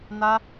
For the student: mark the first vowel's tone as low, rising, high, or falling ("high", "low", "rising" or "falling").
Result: high